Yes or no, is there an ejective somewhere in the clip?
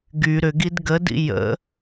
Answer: no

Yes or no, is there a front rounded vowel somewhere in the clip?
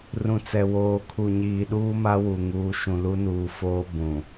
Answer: no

